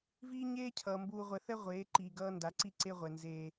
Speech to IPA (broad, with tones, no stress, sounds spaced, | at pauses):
v iː˦ ɲ eː˦ cʰ ʌː˨ m b uː˦ ʁʷ ɛ˦ θ ɛ˦ ʁʷ eː˨˦ ǃ iː˨ ɡ ʌː˦ n d a˨˦ ǀ i˦ ǀ e˦ ʁʷ ɛ˨ n z eː˦